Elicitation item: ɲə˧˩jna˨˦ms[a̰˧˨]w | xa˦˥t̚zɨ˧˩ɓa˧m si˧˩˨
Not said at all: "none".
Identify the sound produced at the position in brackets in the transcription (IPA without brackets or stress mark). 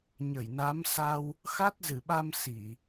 a˧